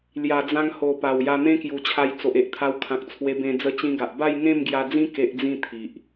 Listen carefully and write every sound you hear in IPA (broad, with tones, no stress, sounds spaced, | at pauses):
l j a˨˩ d͡z ã˧ ŋ h o˨˩ p a˨˩ w j a˧ n̪ ẽ˦ k j u˨˩ t͡ɕʰ a˧ j t͡s o˨ ʔ e˦ ʔ t̪ʰ a˧ w kʰ ã˨ k̚ t͡sʰ w e˧ b ẽ˧ d͡z ə˧ t͡ɕ ĩ˧ ɡ a˨ ʔ b a˥˧ j ŋ ẽ˥˧ m ɡ j a˧ d͡z ĩ˦ k e˦ ʔ d͡z ĩ˥˧ t̪ʰ i˨ ʔ